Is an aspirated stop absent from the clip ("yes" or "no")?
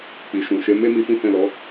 yes